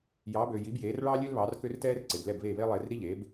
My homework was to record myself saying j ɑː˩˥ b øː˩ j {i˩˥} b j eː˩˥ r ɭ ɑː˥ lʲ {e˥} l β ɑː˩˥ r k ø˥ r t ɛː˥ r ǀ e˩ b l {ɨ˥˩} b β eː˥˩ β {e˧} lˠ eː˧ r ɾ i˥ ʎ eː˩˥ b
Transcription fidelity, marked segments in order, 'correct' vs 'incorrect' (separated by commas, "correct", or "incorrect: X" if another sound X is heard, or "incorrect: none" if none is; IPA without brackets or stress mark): correct, incorrect: ø˥, incorrect: ɛ˥˩, incorrect: e˥